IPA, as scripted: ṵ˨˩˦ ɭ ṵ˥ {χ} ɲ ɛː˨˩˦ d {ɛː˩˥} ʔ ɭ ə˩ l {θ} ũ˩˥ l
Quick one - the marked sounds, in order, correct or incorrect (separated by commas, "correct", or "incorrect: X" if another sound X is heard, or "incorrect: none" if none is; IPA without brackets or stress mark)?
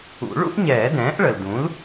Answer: incorrect: ʔ, incorrect: ɛ̃ː˩˥, incorrect: d